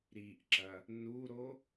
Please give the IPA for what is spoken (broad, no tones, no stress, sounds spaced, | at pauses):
ɾ i ʔ ǁ ɐ | n u ɾ o